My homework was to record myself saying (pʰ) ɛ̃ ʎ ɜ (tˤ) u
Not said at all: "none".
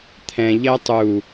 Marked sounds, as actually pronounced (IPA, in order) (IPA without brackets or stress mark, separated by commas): t̪ʰ, tˤ